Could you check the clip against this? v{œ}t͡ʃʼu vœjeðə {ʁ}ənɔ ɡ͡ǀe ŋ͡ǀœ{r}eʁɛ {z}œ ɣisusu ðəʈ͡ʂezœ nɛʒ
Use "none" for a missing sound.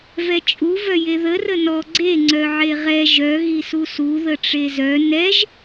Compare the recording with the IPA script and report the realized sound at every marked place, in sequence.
ɛ, r, ʕ, ʒ

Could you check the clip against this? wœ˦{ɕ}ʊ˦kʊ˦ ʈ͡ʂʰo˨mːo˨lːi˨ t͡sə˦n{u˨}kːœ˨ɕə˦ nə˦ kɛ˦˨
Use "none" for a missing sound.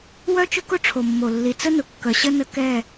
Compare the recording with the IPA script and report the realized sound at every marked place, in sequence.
t͡ʃ, ʊ˨

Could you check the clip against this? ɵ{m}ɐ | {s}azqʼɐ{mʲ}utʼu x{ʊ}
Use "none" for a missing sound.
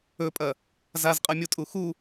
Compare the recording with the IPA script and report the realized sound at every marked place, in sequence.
pʼ, z, mʲ, u

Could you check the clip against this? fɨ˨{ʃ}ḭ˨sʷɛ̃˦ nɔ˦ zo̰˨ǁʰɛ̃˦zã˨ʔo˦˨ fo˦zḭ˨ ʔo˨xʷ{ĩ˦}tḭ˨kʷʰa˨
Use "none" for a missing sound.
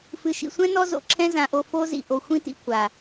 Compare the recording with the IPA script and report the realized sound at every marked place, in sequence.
ʃ, ĩ˦

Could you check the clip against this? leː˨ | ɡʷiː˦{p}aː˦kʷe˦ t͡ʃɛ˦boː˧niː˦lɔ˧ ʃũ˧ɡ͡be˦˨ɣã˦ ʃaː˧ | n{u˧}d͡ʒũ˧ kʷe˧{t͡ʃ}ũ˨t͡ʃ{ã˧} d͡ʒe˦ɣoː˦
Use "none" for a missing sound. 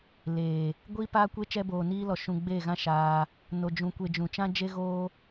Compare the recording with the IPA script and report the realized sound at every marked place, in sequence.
p, o˧, d͡ʒ, ã˦

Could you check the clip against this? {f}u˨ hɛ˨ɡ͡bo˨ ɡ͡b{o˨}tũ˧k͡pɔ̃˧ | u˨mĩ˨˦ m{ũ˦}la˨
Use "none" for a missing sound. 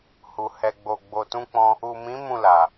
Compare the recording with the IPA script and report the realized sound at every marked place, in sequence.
h, o˨, ũ˦˨

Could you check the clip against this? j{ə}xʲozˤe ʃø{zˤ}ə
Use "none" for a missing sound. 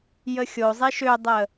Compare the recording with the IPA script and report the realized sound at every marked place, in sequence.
ə, dˤ

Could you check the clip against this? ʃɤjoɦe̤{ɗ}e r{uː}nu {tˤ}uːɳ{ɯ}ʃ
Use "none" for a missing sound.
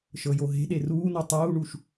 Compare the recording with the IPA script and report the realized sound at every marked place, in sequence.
ɗ, uː, tˤ, u

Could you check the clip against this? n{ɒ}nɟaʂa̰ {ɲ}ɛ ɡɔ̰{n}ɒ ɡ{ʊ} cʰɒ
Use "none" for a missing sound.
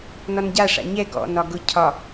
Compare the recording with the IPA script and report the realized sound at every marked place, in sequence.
ɒ, ɲ, n, ʊ

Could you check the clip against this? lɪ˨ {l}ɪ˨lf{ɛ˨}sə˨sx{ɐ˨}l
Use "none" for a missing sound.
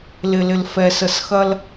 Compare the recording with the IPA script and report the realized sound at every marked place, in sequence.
l, ɛ˨, ɐ˦

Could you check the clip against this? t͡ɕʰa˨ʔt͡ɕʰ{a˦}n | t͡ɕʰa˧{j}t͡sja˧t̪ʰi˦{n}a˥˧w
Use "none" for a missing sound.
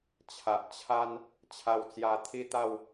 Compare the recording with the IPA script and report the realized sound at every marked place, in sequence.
a˦, w, t̪

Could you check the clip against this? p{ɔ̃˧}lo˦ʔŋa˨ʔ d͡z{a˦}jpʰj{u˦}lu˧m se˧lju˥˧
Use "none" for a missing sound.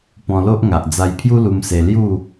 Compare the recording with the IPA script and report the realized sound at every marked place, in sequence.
ɔ̃˧, a˧, u˦

